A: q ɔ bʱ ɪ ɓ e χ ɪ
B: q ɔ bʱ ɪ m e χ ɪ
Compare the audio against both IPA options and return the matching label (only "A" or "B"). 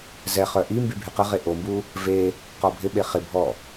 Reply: A